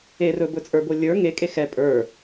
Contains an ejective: yes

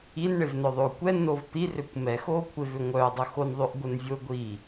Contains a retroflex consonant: yes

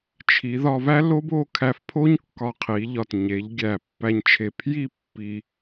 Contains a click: no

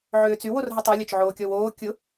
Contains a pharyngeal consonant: yes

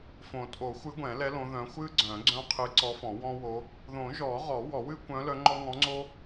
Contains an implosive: no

